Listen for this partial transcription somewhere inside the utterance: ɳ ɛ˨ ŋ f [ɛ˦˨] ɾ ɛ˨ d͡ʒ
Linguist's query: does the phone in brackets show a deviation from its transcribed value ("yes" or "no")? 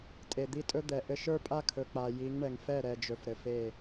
no